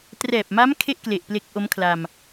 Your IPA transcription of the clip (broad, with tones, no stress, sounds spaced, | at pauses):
t r ɛː˨˩ p̚ m a˦˥ m kʰ e˥˩ ʔ k l e˨˩ ʔ p l e˦˥ k̚ ʔ o˦˥ m kʰ l a˧ m